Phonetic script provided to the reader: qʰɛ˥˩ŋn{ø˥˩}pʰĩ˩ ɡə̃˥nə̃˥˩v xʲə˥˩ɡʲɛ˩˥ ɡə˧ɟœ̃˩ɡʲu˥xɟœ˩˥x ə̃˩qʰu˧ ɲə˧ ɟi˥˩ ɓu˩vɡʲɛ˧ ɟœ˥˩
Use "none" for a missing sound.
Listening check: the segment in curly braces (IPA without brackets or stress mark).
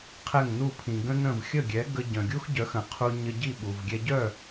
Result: u˥˩